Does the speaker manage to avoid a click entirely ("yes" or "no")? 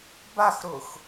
yes